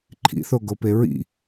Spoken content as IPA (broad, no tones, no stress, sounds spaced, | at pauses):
ǃʰ ḭ θ o ɡ o p e ɹ ḭ